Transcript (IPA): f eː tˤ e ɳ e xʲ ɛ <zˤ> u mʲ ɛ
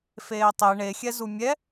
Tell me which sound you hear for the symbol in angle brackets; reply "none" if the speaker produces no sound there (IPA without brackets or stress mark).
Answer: z